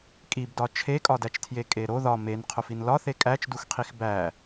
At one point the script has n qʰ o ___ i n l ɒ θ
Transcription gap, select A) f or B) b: A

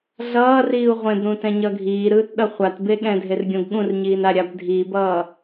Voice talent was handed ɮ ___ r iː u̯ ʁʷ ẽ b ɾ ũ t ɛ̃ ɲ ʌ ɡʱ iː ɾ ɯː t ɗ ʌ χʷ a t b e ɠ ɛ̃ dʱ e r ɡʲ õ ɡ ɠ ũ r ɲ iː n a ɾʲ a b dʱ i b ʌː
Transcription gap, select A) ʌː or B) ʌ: A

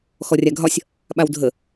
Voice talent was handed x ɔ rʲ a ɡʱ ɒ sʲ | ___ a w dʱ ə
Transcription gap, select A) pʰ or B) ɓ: B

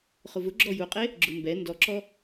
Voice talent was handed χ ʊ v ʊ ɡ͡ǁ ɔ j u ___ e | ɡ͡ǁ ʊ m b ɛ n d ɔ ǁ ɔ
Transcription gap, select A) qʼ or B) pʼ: A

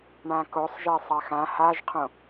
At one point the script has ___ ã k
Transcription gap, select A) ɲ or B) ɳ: B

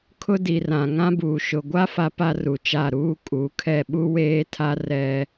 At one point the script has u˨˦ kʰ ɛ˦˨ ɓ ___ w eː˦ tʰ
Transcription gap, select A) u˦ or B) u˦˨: A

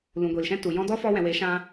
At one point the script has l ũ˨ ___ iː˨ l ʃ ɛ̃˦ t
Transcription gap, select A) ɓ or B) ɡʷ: B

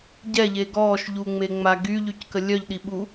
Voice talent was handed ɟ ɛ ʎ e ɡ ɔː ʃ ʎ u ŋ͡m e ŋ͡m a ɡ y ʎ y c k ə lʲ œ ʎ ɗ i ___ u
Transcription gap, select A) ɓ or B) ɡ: A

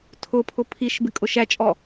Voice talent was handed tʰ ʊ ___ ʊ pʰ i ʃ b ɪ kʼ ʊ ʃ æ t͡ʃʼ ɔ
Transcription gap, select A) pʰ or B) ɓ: A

